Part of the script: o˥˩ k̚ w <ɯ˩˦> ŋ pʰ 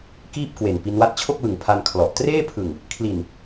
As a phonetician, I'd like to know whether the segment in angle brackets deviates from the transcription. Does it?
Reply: no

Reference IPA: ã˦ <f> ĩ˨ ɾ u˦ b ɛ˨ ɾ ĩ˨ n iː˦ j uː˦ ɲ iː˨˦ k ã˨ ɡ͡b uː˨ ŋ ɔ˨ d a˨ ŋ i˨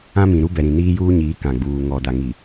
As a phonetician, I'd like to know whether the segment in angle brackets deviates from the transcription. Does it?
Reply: yes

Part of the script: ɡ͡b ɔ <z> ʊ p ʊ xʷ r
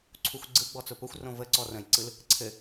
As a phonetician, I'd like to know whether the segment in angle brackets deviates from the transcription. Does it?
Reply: yes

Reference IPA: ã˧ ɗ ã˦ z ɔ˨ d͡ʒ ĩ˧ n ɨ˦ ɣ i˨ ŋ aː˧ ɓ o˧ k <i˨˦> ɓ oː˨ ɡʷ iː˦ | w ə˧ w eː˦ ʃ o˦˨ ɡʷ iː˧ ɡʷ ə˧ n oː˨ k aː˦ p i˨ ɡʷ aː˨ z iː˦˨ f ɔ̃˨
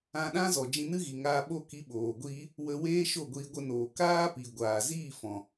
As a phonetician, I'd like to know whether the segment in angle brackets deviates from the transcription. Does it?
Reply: no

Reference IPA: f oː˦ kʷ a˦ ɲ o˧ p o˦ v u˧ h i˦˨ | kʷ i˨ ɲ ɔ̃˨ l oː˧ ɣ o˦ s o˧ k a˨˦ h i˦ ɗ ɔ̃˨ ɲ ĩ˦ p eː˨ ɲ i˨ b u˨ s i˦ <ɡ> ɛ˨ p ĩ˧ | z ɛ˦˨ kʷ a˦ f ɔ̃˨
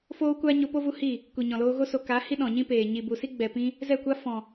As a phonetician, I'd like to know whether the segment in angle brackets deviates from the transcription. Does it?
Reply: yes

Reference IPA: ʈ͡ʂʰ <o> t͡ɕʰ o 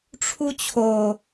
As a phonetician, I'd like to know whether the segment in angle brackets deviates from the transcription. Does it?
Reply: yes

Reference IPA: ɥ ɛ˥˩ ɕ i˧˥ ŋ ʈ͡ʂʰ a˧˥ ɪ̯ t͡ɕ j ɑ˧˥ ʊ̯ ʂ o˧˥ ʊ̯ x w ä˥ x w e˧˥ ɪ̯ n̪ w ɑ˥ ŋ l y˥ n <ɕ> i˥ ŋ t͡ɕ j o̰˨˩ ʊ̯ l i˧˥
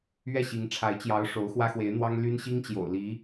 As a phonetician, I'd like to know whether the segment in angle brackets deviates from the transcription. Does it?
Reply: no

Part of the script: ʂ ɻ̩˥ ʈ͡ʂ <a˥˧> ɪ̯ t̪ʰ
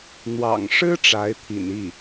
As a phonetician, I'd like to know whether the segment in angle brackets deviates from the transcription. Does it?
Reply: yes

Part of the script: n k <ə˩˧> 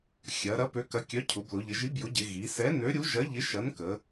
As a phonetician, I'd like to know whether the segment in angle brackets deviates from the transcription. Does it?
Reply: no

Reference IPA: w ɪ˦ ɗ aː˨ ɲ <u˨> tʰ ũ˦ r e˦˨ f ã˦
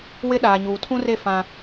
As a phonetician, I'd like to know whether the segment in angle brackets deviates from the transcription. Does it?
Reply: yes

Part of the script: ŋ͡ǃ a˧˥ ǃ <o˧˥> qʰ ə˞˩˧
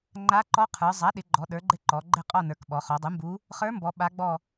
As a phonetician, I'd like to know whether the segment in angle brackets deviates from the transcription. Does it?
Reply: yes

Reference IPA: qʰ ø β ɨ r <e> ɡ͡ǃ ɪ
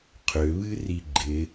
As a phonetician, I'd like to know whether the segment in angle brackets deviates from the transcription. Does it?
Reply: yes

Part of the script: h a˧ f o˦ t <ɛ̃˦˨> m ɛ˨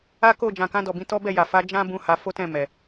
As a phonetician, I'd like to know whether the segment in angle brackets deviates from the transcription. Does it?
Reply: no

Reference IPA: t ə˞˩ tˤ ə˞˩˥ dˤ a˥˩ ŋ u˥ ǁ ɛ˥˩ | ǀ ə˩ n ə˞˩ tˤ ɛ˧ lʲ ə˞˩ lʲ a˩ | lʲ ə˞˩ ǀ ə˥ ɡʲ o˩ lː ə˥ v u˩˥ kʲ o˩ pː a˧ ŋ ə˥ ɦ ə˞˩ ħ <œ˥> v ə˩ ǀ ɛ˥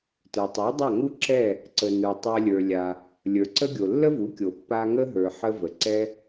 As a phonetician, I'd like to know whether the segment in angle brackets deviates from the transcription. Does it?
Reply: yes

